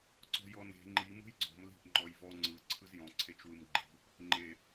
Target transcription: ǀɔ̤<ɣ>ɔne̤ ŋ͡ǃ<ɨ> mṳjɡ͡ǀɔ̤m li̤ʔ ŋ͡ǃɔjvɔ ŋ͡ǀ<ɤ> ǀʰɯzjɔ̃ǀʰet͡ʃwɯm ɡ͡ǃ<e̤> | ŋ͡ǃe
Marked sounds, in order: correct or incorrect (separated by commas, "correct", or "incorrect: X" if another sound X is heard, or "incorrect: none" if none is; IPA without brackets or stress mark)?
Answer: incorrect: j, incorrect: i, incorrect: ɯ, incorrect: i̤